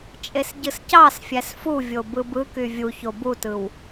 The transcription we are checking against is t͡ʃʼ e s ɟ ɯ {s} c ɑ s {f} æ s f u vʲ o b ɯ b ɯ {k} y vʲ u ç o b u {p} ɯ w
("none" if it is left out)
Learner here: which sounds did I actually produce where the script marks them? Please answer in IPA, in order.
s, fʲ, k, t

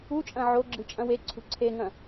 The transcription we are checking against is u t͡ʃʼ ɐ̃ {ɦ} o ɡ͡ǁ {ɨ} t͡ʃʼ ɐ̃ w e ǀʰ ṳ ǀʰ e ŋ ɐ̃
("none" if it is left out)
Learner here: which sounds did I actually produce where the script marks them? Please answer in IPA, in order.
ʕ, ɨ

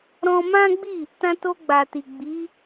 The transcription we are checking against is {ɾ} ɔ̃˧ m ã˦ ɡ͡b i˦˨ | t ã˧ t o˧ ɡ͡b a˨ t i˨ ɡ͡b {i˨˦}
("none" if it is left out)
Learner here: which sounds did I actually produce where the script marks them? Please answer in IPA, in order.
ɾ, i˨˦

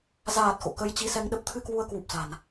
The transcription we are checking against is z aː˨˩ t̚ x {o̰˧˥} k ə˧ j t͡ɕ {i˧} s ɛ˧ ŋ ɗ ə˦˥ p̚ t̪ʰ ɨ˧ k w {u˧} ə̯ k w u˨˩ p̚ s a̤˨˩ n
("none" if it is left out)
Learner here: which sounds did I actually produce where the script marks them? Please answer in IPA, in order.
o̰˧˨, i˧, u˧

